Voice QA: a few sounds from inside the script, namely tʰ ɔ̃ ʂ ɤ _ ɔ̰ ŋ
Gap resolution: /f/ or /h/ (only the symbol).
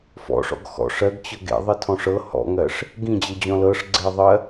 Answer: h